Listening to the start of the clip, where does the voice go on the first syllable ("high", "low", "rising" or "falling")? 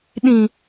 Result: low